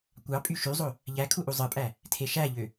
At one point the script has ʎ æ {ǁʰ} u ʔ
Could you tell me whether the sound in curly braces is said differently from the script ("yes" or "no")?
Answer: yes